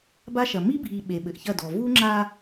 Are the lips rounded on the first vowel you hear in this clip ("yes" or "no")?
no